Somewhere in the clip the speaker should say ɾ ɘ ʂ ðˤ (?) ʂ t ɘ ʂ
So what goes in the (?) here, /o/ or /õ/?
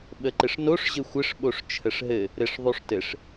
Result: o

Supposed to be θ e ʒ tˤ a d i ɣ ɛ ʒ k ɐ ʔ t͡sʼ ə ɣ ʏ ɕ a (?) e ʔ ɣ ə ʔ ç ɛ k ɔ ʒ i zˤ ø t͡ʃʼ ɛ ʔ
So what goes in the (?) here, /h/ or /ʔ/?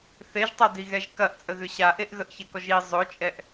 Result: ʔ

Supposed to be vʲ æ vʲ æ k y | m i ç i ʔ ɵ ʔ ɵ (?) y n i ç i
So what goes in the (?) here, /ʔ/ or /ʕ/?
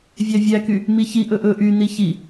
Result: ʔ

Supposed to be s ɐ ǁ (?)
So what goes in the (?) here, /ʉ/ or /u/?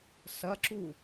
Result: u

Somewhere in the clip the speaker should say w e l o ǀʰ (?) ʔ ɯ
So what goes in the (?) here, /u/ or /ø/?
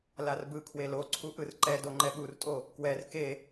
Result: u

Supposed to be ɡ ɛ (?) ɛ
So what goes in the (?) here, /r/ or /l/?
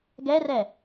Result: r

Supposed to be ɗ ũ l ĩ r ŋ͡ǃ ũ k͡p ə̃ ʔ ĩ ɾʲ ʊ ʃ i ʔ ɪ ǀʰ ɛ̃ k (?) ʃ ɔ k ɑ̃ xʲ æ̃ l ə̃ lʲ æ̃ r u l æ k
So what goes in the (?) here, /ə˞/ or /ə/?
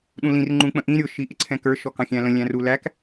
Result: ə˞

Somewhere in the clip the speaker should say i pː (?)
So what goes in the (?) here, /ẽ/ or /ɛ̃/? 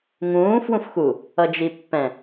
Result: ɛ̃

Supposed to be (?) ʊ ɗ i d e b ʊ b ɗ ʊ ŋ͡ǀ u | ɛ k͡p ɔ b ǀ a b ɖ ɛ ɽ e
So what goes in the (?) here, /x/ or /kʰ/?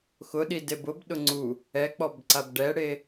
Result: x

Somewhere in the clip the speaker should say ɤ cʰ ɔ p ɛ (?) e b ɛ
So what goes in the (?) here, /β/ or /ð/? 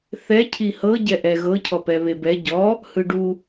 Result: β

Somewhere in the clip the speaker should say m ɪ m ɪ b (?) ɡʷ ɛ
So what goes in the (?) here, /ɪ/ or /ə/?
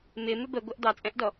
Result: ə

